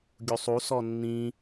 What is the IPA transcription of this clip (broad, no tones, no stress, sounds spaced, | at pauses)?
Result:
ɡʲ u sˤ u s ɔ nː ĩ